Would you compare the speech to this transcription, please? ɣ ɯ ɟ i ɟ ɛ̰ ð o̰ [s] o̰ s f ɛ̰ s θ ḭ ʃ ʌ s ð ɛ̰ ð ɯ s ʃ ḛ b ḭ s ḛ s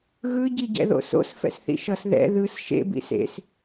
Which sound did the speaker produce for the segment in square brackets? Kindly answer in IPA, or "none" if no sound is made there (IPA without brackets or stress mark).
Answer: s